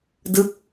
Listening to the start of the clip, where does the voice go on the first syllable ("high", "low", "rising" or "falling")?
falling